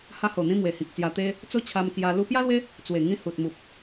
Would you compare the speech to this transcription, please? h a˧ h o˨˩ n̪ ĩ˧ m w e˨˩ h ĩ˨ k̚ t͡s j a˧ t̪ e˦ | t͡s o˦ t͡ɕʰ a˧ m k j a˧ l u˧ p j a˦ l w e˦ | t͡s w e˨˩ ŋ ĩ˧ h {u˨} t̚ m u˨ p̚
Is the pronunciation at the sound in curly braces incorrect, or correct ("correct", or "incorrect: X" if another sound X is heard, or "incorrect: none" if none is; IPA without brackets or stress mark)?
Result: correct